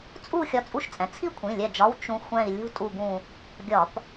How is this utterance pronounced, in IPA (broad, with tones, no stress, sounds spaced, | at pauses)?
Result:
t͡sʼ u˦˨ xʲ ɒ˦˨ t͡sʼ u˥ ʃ t͡sʼ ɛ̃˩˧˩ t͡sʰ i˥ kʷʰ ĩ˩˧˩ lʲ ɛ˦˨ d͡ʒ ɒ˧˥˧ w t͡ʃ ũ˧˥ xʷ ɛ̃˦˨ i̯ lʲ ṳ˥ tʼ u˦˨ ɡ ũ˦˨ | ɡʲ ɒ˧˩˧ p